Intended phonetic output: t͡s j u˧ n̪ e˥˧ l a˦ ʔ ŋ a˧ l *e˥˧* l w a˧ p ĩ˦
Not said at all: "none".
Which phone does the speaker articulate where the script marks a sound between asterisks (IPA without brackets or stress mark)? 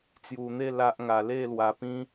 e˥˧